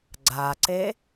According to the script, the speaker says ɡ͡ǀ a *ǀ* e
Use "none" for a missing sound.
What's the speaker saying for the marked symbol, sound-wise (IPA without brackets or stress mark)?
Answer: ǀ